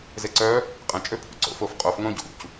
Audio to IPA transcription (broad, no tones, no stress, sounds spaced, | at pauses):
z e ǀ œ | qʼ ɛ̃ t͡ʃʼ ø pʰ ṵ ǀ o̰ f o f qʼ o f ŋ õ ɟ ṵ c